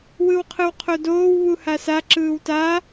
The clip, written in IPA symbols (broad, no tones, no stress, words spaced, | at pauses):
wɯwqʰɯwqʰodoːw βuhasa ǁɯːwta